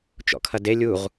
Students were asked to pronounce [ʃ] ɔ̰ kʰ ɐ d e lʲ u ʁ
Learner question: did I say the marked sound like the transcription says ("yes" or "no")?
no